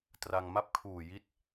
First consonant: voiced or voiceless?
voiceless